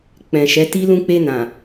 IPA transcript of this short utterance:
k͡pɛ̃˨ʃɛ˨˦ti˦ lũ˧k͡pe˧nã˨

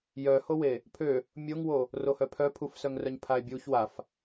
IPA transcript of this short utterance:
jœhowe | pʰø | mʲoŋwo | rohœpʰœ pʰufsœŋrœɲ pʰae̯bʲuç waf

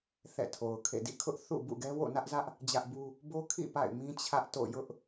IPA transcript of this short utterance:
θɛ̰˦˨tʰo˨ʊ̯kʰḛ˦˨ dḭ˦˨kʰʊ˦ʔ θṵ˦˨bṵ˦˨ɡɛ˦ wo̰˦˨nä˦ʔzä˦ʔ | d͡ʑä˦ʔbu˦ | bo˦kʰḭ˦˨ pa̰˦˨ɪ̯mĩ˦ t͡ɕʰä˦ʔto̰˦˨ jʊ˦ʔ

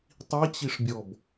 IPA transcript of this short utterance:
tˤit͡ɕiʂbʲɔb

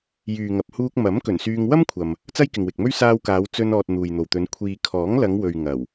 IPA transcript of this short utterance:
jyː˨ŋɐ˨p̚huː˧k̚ mɐ˨˥m kɵ˨˩nsyː˧ŋ wɐ˥mkʷʰɐ˨m | t͡sɐ˥jkɪ˨ŋwɪ˨k̚mɵ˥ɥ saː˧wkaː˨˧w t͡sɵ˧n ɔː˨t̚ n̪uː˨jn̪o˨wt̪ɵ˨˧n kʷʰiː˨kʰɔː˨˥ŋlɐ˨˧ŋwɵ˨ɥ ŋɐ˨˩w

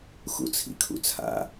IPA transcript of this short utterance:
xṵt͡sʰḭkʰṵt͡sʰa̰

